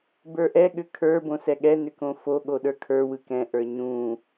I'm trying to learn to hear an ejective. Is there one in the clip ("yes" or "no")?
no